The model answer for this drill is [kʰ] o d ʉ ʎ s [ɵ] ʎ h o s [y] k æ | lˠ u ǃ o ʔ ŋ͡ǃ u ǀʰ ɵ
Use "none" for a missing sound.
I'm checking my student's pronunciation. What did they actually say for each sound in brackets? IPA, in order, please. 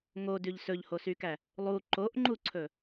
ŋ, ɵ, y

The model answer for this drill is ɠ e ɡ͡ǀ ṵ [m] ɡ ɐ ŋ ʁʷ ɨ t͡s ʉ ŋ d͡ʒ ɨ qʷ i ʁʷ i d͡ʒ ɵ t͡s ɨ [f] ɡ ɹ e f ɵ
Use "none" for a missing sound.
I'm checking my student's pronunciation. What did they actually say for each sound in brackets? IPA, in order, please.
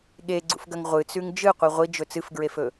f, f

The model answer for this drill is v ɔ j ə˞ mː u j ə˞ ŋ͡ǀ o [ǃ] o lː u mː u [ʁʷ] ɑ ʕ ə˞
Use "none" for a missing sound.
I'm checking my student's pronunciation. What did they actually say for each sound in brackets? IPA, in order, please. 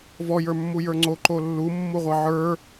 ǃ, ʁʷ

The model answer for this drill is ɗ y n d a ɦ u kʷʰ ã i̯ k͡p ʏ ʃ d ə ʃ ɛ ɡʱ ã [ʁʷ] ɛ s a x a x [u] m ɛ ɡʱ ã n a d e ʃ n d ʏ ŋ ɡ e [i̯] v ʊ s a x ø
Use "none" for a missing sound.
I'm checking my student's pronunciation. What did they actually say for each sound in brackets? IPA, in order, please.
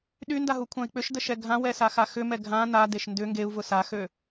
w, ʏ, u̯

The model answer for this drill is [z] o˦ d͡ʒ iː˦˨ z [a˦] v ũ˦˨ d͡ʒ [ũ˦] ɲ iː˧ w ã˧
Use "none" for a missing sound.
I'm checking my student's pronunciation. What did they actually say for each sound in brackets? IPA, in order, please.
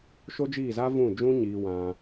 ʃ, a˦, ũ˦

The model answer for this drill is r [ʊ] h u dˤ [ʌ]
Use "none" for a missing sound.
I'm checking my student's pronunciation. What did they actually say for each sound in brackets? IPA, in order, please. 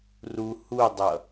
u, ʌ

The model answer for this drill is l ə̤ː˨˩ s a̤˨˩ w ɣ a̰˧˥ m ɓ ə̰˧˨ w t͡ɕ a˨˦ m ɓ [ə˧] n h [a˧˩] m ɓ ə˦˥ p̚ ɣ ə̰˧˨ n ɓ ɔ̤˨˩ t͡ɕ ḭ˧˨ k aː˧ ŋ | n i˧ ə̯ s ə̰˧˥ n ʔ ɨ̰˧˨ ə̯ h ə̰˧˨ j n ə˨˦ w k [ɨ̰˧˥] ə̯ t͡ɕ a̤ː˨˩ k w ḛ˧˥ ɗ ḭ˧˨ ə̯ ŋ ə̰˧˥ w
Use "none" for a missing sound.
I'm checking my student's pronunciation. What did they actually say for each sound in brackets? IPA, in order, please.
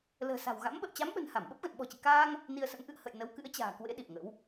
ə̤˨˩, a˧˩, ɨ̰˧˥

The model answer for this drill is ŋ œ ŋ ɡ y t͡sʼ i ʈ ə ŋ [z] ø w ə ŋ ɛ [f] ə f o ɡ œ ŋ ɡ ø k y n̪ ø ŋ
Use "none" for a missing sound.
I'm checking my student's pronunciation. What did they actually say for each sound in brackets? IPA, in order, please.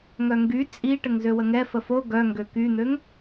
z, f

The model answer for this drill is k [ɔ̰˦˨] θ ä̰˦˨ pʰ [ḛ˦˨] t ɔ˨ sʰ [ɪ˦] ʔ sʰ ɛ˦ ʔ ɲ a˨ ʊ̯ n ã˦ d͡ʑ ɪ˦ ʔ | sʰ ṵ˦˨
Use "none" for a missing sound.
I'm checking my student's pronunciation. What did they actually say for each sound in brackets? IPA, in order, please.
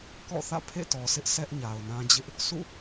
ɔ̰˦˨, ḛ˦˨, ɪ˦

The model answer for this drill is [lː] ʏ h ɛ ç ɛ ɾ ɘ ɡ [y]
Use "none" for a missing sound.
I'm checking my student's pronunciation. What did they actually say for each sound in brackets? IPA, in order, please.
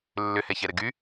lː, y

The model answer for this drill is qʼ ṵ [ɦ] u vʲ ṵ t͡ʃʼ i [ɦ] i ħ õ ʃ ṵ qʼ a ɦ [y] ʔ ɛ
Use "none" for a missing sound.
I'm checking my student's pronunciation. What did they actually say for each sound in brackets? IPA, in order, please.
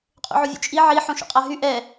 ʕ, ʕ, y

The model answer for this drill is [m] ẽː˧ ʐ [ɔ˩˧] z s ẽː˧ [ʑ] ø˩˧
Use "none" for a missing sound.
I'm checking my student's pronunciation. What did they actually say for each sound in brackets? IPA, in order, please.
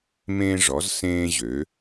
m, ɔ˩˧, ʑ

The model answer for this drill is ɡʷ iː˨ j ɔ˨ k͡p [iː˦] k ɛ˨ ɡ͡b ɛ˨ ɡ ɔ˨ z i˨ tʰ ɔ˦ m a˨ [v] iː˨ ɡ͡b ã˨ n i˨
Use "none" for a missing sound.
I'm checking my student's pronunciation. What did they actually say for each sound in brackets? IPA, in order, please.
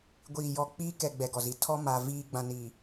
iː˦, v

